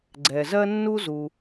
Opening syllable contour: low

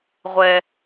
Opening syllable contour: low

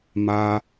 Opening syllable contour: high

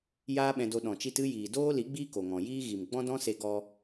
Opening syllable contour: high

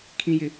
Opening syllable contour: high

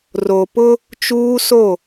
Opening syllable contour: low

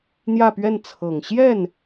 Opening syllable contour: falling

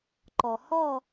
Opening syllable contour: low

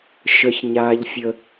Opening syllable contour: high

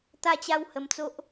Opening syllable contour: falling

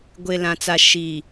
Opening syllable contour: low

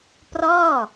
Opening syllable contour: falling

